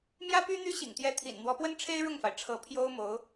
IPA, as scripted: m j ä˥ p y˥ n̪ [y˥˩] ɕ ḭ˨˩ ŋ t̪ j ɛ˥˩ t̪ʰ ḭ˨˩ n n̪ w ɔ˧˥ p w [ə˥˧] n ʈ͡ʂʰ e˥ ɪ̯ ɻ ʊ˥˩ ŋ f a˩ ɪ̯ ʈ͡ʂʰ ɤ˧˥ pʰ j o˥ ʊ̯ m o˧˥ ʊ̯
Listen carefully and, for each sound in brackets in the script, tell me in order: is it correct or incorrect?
incorrect: y˥, incorrect: ə˥

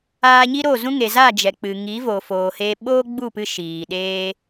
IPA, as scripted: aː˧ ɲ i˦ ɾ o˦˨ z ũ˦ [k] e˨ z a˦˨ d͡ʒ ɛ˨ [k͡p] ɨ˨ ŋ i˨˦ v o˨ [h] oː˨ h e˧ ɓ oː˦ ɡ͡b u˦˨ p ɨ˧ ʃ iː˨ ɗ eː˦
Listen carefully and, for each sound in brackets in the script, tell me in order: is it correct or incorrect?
incorrect: ŋ, correct, incorrect: f

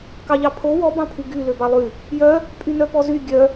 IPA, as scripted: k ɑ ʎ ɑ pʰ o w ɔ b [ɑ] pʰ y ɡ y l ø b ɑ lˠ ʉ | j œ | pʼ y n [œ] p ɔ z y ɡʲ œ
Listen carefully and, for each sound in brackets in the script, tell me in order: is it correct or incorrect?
incorrect: ɑ̃, correct

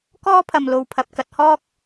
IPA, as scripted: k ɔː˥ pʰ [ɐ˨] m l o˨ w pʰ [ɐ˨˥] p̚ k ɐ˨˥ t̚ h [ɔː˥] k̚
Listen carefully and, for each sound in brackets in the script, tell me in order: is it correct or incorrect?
correct, incorrect: ɐ˨, correct

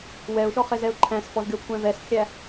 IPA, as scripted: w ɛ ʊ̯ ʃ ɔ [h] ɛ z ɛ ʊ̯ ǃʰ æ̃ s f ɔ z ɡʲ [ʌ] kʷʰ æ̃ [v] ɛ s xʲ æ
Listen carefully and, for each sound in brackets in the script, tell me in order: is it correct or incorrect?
incorrect: χ, incorrect: ɔ, correct

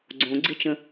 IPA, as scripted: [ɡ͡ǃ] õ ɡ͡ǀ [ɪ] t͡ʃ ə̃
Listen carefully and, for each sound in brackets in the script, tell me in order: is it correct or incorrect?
incorrect: ɡ͡ǀ, correct

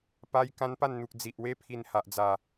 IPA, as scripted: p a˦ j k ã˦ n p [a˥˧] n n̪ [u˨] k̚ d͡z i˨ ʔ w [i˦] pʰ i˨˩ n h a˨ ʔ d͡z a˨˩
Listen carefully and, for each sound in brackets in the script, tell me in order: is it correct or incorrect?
correct, correct, incorrect: e˦

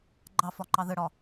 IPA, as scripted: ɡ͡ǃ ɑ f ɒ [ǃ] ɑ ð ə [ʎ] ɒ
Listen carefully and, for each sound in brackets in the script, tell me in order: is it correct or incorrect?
correct, incorrect: ɽ

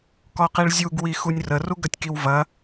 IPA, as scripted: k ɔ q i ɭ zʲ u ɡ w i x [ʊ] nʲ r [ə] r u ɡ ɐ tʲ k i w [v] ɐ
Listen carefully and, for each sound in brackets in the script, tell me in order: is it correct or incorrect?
incorrect: u, correct, correct

